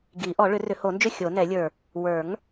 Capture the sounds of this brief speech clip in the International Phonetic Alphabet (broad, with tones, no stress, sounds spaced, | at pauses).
ɡ i˨˩˦ ʔ ɔ˨˩˦ ɭ ʏ˨˩˦ r ʏ˨˩˦ h o˨˩˦ n d͡ʒ ʏ˥˨ xʲ o˨˩˦ n ɛ˨˩˦ lʲ ə˞˨˩ | w ə˞˨˩˦ ŋ